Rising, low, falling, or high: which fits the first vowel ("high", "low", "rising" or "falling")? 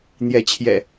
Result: rising